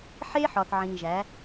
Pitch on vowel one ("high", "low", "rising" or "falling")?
high